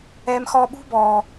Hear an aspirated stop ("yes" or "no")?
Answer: no